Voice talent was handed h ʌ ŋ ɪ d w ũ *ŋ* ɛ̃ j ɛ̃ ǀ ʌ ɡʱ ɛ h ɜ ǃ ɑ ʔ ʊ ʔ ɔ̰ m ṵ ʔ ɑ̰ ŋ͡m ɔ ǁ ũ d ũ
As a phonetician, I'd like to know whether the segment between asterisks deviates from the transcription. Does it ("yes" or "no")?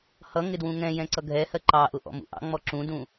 no